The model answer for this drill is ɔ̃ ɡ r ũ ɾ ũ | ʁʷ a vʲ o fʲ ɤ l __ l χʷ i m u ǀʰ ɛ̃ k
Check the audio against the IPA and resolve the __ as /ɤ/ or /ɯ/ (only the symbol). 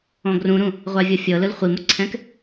ɯ